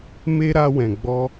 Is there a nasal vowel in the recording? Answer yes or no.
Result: yes